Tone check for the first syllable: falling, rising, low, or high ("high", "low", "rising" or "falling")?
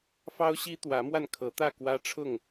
high